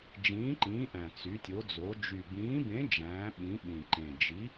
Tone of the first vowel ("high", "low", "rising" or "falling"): rising